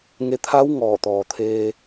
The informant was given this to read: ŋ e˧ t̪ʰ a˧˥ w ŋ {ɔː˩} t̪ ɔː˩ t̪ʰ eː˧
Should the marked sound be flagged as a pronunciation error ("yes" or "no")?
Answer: yes